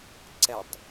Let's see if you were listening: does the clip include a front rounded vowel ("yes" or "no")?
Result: no